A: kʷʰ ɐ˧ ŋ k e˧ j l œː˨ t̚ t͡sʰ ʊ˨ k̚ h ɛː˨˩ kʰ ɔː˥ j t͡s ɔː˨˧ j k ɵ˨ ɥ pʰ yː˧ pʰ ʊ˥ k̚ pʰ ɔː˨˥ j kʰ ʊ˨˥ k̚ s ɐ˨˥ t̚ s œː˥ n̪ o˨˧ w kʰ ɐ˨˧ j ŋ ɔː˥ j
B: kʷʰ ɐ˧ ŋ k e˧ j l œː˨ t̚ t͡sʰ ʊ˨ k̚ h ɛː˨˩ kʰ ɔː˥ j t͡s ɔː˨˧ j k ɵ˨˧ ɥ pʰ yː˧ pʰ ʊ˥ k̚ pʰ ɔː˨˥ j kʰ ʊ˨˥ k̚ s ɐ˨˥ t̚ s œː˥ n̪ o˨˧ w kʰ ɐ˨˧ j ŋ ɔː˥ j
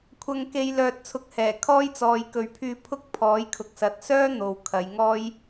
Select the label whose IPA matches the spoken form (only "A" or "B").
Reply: A